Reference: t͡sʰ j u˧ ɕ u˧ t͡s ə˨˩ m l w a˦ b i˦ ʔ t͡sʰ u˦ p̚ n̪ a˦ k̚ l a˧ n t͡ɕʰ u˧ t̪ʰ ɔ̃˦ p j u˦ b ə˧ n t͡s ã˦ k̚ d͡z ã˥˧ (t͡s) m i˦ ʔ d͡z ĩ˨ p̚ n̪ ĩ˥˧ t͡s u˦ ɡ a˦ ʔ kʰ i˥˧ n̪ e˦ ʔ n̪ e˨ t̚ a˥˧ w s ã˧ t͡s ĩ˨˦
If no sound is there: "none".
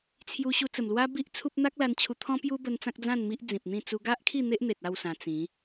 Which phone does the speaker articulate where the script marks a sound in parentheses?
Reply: n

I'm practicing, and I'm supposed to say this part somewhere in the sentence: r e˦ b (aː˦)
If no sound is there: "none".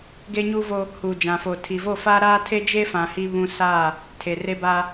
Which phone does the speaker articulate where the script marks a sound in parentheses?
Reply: a˦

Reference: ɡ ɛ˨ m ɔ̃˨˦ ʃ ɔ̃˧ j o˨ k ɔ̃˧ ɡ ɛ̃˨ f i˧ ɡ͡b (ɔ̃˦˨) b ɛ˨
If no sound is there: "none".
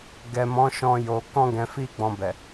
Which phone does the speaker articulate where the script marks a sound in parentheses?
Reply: ɔ̃˧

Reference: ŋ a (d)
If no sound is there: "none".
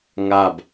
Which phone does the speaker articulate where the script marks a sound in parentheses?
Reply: b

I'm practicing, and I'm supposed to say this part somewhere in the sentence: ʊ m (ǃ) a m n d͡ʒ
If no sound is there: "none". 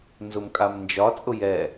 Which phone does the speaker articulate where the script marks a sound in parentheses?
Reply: kʼ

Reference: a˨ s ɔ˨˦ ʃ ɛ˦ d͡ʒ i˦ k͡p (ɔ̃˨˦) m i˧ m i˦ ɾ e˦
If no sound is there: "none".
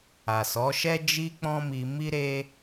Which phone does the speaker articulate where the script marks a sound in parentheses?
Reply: ɔ̃˦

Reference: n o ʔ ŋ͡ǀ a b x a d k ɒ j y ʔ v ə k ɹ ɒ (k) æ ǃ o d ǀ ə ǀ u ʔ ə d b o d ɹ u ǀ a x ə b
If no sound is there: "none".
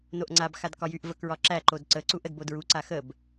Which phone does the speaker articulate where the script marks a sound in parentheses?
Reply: ǁ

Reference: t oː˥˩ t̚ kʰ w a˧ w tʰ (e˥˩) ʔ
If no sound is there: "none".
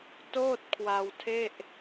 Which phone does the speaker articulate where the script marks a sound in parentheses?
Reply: e˥˩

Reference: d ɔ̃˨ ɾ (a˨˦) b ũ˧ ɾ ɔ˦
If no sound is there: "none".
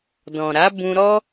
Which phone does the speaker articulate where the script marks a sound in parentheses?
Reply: a˨˦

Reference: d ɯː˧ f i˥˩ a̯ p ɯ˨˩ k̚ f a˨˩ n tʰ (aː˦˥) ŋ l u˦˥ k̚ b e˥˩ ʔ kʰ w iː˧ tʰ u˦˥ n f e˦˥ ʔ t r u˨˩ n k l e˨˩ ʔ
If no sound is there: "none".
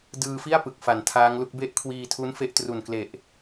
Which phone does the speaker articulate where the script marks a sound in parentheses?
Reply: aː˦˥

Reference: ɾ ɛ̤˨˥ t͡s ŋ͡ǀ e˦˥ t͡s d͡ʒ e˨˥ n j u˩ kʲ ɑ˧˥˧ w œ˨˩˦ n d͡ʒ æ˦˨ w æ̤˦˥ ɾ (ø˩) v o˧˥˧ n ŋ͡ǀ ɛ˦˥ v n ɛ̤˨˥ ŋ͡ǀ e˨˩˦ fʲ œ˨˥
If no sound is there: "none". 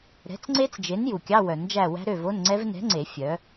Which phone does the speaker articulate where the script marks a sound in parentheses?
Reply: ø˦˨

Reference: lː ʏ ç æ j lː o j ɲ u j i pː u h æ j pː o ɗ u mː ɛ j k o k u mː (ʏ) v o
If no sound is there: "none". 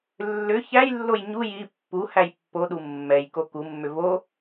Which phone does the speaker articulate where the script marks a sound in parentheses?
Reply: ʏ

